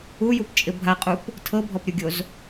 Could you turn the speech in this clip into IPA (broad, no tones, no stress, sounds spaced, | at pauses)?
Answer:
u j u p t͡ʃʼ ɪ bʱ a qʼ u p | tʰ ɤ bʱ ɔ p ɾʲ u ɡʲ o z